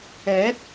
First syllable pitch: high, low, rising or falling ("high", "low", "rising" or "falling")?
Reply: rising